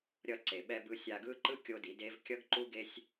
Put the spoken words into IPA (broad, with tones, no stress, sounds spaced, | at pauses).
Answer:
ɾʲ ʌ˧ ǀ e˨ ɓ ɛ˧ b ɯ˧ sʲ a˧ ɡ ɯ˦ ǃ ɯ˦ kʲ o˦ d i˨˦ d e˦ v kʲ ʌ˦ ɡ ǃ u˦ ɡ e˦ sʲ